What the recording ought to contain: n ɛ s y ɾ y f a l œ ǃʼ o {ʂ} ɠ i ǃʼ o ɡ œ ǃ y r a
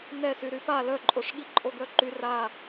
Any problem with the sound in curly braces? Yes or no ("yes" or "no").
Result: no